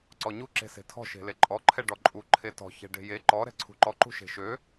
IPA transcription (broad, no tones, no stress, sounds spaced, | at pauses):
ǀ ɔ ɲ u ǁ e̤ s e̤ tʰ ɔ̤ ʃ e̤ l e ǃʼ ɔ ǃʰ ɛ ɖ ɔ ǃʼ u ǃʰ e t ɔ̤ ç ɛ̤ ɖ e̤ j e ǃ ɔ ɾ ɛ̤ ǀʰ ṳ ǃ ɔ ǃ ṳ ʃ e̤ ʃ ø